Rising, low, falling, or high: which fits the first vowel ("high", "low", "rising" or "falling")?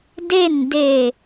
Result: falling